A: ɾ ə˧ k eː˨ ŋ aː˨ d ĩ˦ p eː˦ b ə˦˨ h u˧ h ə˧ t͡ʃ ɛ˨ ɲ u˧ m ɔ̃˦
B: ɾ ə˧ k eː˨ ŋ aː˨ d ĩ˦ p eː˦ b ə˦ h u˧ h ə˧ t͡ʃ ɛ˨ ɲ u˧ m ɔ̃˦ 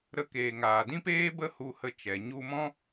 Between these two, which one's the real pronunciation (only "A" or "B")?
B